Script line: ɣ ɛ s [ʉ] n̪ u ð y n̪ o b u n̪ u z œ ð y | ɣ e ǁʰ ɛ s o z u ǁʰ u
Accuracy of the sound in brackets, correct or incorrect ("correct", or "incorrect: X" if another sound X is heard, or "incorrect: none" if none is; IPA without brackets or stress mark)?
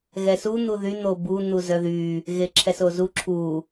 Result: incorrect: u